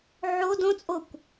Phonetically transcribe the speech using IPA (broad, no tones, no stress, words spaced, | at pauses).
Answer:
ʕo dõt͡sʼokʷ